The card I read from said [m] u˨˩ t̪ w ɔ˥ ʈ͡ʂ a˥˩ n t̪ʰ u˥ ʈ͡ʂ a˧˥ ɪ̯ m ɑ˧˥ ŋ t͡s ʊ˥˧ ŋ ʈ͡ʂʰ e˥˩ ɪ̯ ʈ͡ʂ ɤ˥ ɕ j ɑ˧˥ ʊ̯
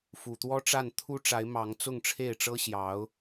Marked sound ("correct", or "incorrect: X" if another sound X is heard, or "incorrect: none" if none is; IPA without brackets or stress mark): incorrect: f